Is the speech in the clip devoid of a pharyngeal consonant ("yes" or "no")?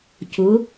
yes